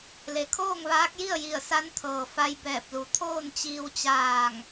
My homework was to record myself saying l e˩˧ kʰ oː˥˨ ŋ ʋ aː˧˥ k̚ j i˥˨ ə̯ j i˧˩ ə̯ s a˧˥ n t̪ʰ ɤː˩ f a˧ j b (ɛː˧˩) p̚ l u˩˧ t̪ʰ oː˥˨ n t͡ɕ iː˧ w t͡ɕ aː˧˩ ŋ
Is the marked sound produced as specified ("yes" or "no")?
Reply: yes